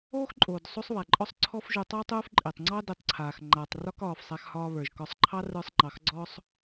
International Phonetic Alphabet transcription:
oː˥xǃʼoː˩d sˤo˥sˤβa˩ǃʼɔ˥sˤ ǀʰɔ˦fʒu˨ tˤa˥tˤuː˦fǃʼɪː˩tˤŋ͡ǀɑ˥ di˨tˤǀʰaː˩x ŋ͡ǃa˩tˤ rɒ˦kɒː˩fsˤa˨x hɒː˦βə˞˩ʒ kɒ˨sˤǃʰɑ˥ rə˞˦sˤŋ͡ǃɑ˨xɡ͡ǀɔ˥sˤ

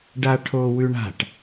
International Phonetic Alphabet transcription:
ɖaʈʰowʉɳa̤ʈ

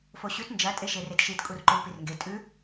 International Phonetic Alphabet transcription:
foɕʉt nd͡ʒɐ tʼeʃeretʃit kʼurǃuɭpirŋɡe tʼʉ

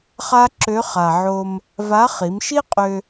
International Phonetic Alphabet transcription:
χa˥ǁø˧˥χa˩ʕo˧m | va˧˥ χi˩˧mʃi˥qʼø˧

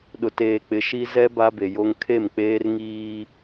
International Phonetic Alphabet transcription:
ɗʊ˨teː˨k͡pɪ˨˦ ʃi˦ zɛ˦ ba˦be˨jo˦ŋ kʰe˦˨mk͡peː˦rŋiː˦

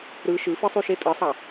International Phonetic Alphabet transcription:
ɾɯ ʃɯfɯsˤyʃe tʼɯsˤɑ

